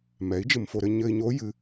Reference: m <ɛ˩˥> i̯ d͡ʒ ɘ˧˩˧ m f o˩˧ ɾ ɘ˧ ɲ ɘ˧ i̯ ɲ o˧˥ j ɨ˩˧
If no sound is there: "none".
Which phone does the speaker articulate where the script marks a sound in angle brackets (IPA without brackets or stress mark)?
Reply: ɛ˩˥